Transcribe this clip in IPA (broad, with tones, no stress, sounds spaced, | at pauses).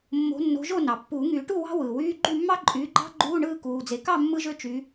mː o̤˨˦ nː o̤˨˦ ʒ o˥˨ n ɑ˩ pː uː˨˩˦ ŋ y˨˩˦ ʈ u˥˨ w ɑ̤˥ w ɯː˩ w yː˧˥˧ ɡ͡ǃ y˥˨ mː ɑ˥ ǃʼ yː˨˦ ɡ͡ǃ ɑ̤˥ ɡ͡ǃ uː˧˥˧ ɳ ɯː˥˨ k uː˩ d͡z e˩ k ɑ˥˨ mː ɯ˥ ʒ ø˥ t͡ʃ y˨˦